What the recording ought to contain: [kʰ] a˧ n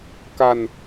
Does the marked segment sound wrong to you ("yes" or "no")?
yes